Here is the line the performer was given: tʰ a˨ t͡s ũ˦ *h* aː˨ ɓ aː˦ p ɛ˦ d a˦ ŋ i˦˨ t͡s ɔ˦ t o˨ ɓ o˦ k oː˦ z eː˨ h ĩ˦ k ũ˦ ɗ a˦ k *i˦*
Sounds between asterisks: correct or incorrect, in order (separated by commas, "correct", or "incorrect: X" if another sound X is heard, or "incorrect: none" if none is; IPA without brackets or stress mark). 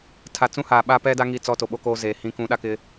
correct, incorrect: ɪ˦